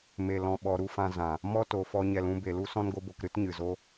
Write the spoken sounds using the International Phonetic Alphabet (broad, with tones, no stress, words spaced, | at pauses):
me˨ lɔ̃˨ɓɔ˨ɾu˦fã˧ zã˨ | mɔ˦to˨fɔ˧ ɲɛ˨lũ˧ be˨lu˦ sɔ̃˦nɡo˦bo˧k ɾɨ˦tɲɨ˨zo˦